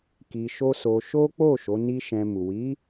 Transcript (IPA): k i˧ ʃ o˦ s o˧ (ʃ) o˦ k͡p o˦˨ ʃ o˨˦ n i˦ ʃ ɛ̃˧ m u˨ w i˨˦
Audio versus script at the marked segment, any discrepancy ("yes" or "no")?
no